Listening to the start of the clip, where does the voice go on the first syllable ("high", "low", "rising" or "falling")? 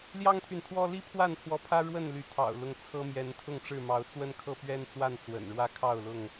high